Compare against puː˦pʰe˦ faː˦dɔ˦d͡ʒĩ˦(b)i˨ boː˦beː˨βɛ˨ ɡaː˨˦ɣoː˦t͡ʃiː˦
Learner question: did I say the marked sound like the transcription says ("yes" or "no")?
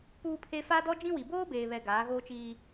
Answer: no